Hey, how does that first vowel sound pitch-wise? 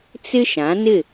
high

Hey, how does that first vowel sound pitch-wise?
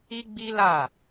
high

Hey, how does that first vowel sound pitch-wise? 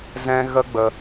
high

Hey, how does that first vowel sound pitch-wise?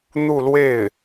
falling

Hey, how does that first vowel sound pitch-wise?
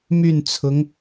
falling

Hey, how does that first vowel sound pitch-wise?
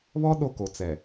high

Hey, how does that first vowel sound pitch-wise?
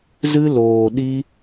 high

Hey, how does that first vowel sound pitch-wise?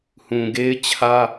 low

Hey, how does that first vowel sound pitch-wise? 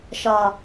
low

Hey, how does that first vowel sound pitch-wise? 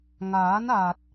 rising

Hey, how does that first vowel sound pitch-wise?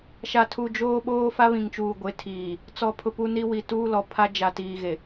low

